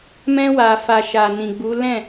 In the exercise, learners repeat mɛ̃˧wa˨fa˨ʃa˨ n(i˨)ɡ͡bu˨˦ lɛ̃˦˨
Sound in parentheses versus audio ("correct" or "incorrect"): incorrect